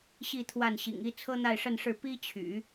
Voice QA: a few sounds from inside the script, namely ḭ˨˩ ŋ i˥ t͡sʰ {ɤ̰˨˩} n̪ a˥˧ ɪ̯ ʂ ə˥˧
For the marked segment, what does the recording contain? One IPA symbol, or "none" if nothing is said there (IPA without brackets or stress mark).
ɤ˥